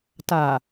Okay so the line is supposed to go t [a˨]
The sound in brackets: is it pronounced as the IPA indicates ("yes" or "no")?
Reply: yes